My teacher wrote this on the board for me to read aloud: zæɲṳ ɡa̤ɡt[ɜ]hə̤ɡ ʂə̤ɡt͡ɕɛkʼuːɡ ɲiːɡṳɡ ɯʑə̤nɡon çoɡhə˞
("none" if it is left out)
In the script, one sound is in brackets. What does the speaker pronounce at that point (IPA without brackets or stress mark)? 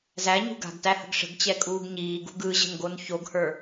æ